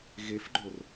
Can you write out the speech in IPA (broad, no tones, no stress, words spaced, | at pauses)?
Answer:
ɣefɡ͡ǃor